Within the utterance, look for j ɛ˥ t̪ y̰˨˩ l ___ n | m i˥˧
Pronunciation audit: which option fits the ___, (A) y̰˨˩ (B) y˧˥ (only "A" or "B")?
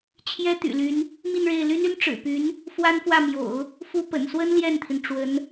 B